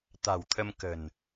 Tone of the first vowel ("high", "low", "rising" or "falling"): low